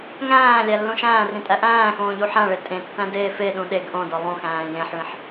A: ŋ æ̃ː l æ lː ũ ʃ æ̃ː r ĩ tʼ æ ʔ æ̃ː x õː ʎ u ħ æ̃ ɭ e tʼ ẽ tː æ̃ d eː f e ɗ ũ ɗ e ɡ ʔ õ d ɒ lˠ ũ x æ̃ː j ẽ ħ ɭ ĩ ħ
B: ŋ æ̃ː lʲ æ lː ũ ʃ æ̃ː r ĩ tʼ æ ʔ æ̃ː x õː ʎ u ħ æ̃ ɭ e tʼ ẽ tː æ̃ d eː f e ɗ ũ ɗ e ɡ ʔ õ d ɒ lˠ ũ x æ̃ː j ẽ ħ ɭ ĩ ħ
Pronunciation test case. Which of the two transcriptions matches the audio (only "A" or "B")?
B